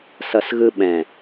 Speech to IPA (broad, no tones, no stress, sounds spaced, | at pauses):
s ʌ s ɣ ɯ ɓ ɛ̃